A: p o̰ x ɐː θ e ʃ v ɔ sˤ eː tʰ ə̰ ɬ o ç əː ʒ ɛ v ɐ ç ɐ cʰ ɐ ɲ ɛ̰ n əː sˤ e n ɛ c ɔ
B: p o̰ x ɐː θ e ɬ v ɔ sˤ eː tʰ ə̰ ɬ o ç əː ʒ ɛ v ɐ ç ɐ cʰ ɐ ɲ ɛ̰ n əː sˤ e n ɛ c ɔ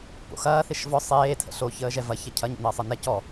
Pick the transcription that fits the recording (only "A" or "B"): A